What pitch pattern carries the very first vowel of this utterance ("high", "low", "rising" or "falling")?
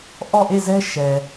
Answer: falling